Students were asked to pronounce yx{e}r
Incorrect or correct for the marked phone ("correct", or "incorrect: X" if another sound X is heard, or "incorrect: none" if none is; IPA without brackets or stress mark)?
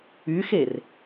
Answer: correct